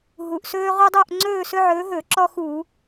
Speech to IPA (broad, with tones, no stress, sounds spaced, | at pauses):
ɦ u˩ ʔ s ɵː˦ ʁ u˦ dˤ ɵː˦˨ ʔ ŋ͡ǀ ɵː˦˨ s ɵ˦ ʕ ɵː˨˦ ɦ ɵ˧˩˧ ǁ ɔ˦ x u˧˩˧